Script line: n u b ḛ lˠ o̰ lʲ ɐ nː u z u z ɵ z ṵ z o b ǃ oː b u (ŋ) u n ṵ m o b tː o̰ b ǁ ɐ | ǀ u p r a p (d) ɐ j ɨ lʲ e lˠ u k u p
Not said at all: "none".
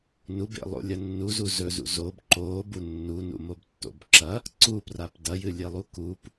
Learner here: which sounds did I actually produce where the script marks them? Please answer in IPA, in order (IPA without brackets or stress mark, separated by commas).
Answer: nː, d